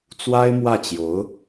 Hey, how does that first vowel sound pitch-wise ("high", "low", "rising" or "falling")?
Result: high